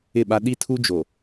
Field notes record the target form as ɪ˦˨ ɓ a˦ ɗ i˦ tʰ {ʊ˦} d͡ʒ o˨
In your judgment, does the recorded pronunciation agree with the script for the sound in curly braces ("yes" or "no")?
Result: no